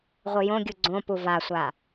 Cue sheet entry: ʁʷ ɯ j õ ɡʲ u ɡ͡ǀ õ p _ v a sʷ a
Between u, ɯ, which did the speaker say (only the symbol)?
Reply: u